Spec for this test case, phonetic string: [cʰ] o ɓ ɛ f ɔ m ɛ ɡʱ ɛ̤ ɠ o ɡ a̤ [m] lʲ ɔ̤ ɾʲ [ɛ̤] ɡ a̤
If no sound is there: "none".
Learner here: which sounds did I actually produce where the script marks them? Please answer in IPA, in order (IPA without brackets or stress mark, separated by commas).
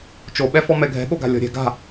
t͡ʃ, none, ɛ̤